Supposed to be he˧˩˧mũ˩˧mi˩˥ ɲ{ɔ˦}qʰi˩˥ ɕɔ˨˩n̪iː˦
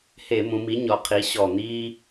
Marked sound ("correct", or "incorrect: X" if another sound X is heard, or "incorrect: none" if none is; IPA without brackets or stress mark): incorrect: ɔ˩˥